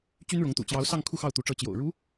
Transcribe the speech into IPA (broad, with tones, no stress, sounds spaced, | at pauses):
t͡ɕ y˥ n ɻ ʊ˧˥ ŋ t̪ ṵ˨˩ t͡ɕ j ɑ˧˥ ʊ̯ s ɑ˥˧ ŋ kʰ u˥˧ x ɑ˥˩ ʊ̯ t̪ u˧˥ ʈ͡ʂ ɤ˧˥ t͡ɕ j o̰˨˩ ʊ̯ ɻ u˧˥